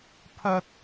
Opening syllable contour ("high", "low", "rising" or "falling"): high